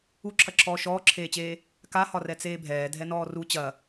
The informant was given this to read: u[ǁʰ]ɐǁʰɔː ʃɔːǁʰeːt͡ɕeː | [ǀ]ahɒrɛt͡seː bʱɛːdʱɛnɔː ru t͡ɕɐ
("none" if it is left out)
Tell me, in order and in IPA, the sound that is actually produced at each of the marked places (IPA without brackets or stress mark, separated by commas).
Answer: ǁʰ, k